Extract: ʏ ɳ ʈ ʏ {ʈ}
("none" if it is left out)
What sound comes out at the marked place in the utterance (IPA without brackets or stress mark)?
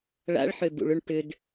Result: d